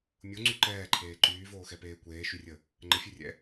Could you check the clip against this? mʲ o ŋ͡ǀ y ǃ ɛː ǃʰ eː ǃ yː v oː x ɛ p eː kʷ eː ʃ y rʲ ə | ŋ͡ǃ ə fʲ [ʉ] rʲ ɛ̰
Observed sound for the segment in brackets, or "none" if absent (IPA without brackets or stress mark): ʉ